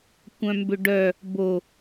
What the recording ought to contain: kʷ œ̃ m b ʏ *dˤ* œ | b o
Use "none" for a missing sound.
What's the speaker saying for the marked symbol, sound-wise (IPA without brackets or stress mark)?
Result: ɖ